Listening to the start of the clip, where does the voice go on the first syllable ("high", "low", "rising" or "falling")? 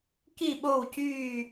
falling